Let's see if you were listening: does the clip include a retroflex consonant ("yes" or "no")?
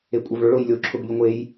yes